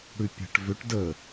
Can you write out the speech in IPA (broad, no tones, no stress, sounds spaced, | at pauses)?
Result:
ɽ ʉ pʲ a̤ ʈ v ʏ ʈ d ə